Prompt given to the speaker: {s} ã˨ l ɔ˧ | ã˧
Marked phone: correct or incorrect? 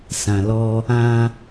correct